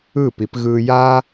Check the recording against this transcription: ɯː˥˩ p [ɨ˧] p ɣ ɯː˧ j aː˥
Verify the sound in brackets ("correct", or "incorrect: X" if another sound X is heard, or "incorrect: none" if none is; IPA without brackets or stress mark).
incorrect: i˧